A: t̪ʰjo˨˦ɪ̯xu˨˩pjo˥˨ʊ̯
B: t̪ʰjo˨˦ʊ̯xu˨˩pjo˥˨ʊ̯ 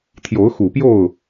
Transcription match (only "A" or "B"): B